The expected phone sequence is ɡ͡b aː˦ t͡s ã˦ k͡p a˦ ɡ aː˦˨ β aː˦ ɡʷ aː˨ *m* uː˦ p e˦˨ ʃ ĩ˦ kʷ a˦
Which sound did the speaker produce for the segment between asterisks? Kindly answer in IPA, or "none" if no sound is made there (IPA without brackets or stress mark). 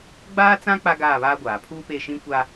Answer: pʰ